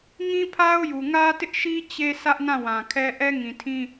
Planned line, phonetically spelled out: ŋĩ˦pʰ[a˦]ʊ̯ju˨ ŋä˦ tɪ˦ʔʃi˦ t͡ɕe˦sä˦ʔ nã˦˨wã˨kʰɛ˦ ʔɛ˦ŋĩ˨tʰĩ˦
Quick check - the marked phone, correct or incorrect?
correct